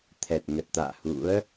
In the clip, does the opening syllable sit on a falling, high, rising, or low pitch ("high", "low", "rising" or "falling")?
low